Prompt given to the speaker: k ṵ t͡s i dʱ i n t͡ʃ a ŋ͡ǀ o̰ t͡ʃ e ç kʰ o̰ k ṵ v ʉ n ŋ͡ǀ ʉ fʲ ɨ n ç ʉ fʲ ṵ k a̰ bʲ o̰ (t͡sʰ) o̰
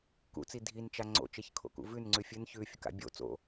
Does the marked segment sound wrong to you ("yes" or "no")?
yes